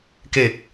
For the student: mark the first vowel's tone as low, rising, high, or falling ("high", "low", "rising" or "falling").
low